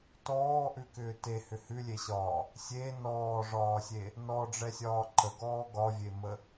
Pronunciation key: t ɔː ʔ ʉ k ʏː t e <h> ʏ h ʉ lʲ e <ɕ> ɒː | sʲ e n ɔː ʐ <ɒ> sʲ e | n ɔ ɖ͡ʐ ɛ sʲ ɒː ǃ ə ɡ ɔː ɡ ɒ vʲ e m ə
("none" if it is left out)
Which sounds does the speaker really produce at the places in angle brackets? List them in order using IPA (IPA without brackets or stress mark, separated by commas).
h, ɕ, ɒː